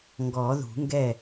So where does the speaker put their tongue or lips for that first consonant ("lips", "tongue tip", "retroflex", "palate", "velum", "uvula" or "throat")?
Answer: velum